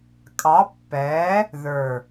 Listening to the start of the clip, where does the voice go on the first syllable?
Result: rising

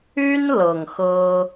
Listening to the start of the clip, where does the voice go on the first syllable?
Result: high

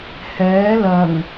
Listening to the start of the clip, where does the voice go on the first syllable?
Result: rising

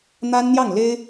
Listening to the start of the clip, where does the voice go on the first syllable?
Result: high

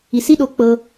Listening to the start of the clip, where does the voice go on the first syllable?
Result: low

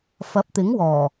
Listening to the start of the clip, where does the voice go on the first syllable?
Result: rising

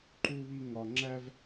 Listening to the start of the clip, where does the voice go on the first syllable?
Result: high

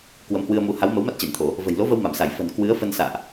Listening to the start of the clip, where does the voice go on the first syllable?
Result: rising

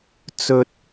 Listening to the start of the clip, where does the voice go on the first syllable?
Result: low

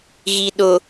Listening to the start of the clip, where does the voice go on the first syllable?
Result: low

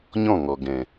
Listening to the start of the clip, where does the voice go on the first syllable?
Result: falling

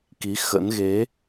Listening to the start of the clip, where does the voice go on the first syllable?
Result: rising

